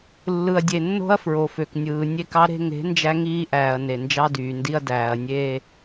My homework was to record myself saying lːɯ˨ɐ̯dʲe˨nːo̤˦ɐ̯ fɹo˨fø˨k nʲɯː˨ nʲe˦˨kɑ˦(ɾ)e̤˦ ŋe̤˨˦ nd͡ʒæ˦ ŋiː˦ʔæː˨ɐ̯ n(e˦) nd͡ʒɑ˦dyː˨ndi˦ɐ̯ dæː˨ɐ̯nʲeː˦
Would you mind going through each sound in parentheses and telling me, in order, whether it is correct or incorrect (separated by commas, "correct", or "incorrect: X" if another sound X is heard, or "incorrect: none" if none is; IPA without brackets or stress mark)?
correct, incorrect: e˨